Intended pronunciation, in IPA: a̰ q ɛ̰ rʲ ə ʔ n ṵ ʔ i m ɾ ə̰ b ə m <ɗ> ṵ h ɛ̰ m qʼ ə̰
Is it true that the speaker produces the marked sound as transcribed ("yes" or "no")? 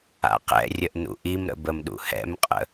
yes